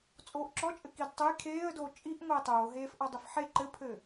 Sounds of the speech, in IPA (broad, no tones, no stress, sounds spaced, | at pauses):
t͡sʼ oː ʔ ǁ ɔ t͡ʃʼ ɘ k i d tˤ ɘ j kʰ eː ə̯ d oː t͡ʃʼ i ʔ ŋʷ eː tˤ oː ɦ eː f ʔ ɔ dˤ ɘ f ħ e ǃ ɘ pʰ ɘ